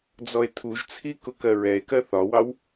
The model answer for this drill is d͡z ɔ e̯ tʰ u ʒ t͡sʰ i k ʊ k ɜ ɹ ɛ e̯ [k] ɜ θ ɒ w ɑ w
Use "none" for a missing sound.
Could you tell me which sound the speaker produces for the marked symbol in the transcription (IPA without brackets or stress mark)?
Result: k